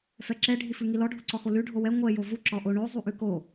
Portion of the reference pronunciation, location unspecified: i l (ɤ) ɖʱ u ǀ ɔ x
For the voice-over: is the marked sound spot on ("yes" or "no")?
no